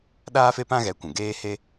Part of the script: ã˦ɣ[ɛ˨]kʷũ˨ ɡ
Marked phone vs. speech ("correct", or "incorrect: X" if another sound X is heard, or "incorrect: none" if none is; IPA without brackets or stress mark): incorrect: ɛ˨˦